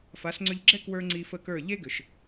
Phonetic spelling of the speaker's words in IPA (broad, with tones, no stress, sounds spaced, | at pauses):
f a˨˦ s ŋ͡ǀ ʏ˧ ʎ ɡ͡ǁ ɛ˦ k w ə˞˦ ŋ͡ǀ i˧ f ə˦˨ k ə˞˦˨ ʎ e˦ ɡ ʏ˨ ʃ